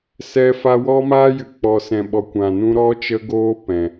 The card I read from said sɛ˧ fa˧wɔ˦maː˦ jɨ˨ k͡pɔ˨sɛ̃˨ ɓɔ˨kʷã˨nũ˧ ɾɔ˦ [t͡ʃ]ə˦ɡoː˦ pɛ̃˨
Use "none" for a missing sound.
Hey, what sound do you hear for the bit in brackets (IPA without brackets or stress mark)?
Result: t͡ʃ